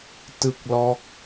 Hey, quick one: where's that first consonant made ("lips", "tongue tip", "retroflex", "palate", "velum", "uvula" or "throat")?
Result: tongue tip